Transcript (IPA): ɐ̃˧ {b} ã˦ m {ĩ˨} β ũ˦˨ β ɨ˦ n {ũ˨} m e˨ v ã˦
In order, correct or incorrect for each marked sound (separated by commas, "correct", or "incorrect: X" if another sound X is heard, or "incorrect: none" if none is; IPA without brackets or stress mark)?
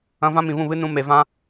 incorrect: v, correct, incorrect: ũ˧